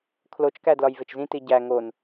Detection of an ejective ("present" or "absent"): absent